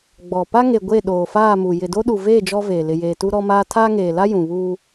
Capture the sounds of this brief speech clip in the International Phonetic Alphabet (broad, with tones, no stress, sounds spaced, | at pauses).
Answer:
ɡ͡b ɔ˨ p a˦ ŋ e˨ ɡʷ e˦˨ ɗ oː˨ f aː˦˨ m u˨ j ɪ˨ d o˦ ɗ u˨ v eː˦˨ d͡ʒ ɔ˦ v eː˨ l ɪ˨ j eː˨ t u˦ ɾ ɔ˦ m aː˦ tʰ aː˦ ŋ eː˨ l a˦ j ũ˨ β uː˦